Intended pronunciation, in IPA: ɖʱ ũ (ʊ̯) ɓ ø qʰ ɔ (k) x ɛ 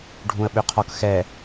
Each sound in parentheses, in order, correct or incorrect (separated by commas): incorrect, correct